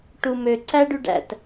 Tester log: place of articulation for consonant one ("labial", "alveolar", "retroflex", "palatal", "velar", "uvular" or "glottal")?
retroflex